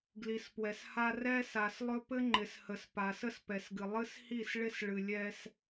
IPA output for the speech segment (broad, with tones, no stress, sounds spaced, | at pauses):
ɡ l i˨ s p w ɛ˨ s h a˦ r ɛ˦ s a˨ s lˠ ɵ˦ p ɘ˦ ŋ͡ǃ ɪ˨ s h ə˨ s p a˨ s ə˦ s p ɛ˨ s ɡ ɨ˨ lˠ ɨ˦ s h i˦˨ s ɭ ɪ˦ s ɭ ɨ˨ lʲ ɛ˦ s